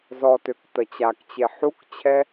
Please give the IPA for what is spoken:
z ɔ t ø k t ə t͡ɕ a k t͡ɕ e ħ u k t͡ɕʰ ɛ

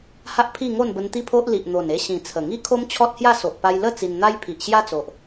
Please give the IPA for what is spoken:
h a˦ ʔ pʰ i˥˧ ŋ o˥˧ n b ə˧ n t̪ i˦ pʰ o˦ ʔ l i˨ ʔ n̪ o˨˩ n e˧ ɕ ĩ˨˩ t͡sʰ ə˨˩ ŋ i˦ kʰ o˦ m t͡ɕʰ ɔ˦ t̚ h j a˥˧ s o˨ ʔ p a˧ j l ə˥˧ t͡s i˧ n n̪ a˦ j pʰ i˨ ʔ ɕ j a˦ t͡s o˨ ʔ

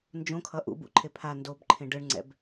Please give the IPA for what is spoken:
n d͡ʒ õ kʰ ʌ ʔ ṵ b ṵ ǃʰ e pʰ a n d o b ǃʰ ẽ ɖ ɯ ɳ ŋ͡ǀ ɛ̰ b

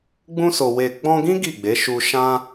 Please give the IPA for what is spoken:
ɡ͡b ũ˧ s o˨ w e˨ ɡ͡b ɔ̃˧ ɡ ĩ˦ ɡ i˦˨ ɡ͡b e˨˦ ʃ u˧ ʃ ã˧

